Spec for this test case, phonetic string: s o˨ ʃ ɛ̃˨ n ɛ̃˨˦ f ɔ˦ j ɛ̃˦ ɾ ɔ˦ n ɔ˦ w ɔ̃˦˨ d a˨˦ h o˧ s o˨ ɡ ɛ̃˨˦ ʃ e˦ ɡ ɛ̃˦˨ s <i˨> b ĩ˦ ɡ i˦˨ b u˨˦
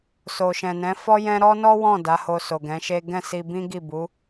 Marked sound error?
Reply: yes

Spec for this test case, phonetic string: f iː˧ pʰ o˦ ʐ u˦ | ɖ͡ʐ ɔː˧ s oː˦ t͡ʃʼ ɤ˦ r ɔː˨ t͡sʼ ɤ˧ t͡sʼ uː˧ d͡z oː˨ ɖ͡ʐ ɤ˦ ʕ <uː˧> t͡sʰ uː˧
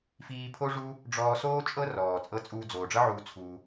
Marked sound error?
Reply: no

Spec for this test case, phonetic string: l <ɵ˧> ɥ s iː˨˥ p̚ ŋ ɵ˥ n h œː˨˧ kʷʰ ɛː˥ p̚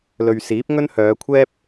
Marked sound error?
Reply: yes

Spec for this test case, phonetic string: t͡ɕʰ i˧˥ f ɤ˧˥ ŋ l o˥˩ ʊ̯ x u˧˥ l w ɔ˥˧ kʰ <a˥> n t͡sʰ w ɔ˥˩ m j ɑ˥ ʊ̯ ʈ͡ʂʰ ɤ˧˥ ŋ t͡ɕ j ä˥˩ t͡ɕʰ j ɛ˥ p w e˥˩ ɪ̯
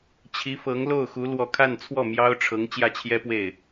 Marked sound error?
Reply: yes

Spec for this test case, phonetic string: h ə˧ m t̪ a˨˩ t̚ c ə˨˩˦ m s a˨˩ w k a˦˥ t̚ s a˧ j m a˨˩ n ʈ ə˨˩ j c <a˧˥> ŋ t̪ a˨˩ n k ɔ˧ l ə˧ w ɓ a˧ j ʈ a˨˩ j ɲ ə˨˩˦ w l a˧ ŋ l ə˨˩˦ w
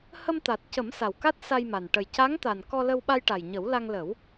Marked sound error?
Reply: no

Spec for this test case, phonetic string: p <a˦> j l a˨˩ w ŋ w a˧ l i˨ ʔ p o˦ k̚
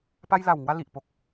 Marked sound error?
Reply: yes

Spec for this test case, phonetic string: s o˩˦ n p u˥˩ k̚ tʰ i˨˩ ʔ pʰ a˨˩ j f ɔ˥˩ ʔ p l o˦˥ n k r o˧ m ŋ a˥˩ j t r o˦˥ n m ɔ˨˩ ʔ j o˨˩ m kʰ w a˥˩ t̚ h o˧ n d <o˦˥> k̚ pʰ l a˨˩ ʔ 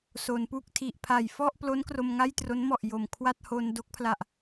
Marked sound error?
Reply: no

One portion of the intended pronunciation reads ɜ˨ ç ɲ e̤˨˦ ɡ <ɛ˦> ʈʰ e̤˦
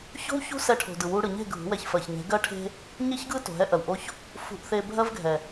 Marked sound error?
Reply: yes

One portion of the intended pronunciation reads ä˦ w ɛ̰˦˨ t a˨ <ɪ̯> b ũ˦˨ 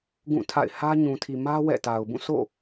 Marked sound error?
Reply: yes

